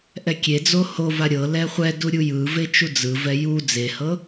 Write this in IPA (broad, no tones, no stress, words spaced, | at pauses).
ʔɛkʲed͡zo hova ɾʲɤ lɛχʷɛdu ɾʲujɯve t͡ʃud͡zɯvɛ ju d͡zehɤ